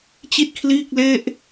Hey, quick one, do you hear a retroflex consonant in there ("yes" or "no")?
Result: no